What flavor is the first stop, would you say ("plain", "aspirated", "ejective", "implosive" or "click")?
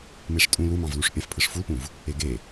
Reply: ejective